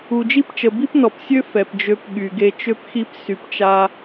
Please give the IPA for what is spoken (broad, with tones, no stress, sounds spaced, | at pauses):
u˨ d͡ʒ i˦ p t͡ʃ ə˨ b i˦ p n ɔ˨ p sʲ ø˦ f ɛ˨ p d͡ʒ ø˧ p ɠ y˨ ɡ e˧ t͡ʃ ø˦ p x i˦ p s y˧ p t͡ʃ a˦